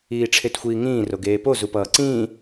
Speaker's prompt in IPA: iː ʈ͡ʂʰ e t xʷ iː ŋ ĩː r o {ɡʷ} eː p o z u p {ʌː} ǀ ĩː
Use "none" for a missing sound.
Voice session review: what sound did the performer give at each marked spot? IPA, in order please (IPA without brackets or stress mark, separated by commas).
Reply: ɡ, ʌː